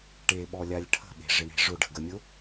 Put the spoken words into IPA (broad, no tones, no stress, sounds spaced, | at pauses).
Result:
ʈ e ɓ ɔ lʲ a lʲ ʈʰ ə̤ ɓ e̤ ʐ ɪ ɳ e̤ ʐ ʊ ɖ ə̤ ɡ ə mʲ ʊ